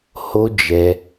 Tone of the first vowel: high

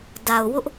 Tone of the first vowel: low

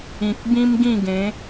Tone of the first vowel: low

